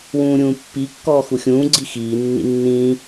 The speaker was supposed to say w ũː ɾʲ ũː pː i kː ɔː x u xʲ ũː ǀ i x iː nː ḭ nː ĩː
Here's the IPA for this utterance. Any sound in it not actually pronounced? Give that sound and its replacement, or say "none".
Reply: ǀ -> ɡ͡ǀ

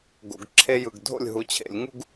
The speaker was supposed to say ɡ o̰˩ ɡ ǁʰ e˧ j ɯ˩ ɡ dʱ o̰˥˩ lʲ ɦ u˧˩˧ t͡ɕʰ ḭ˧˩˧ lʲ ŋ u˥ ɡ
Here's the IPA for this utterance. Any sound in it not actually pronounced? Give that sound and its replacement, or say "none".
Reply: ḭ˧˩˧ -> ḛ˧˩˧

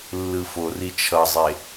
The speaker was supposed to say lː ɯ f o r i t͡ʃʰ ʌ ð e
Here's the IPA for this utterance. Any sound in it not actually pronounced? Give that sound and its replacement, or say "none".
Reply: ð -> zˤ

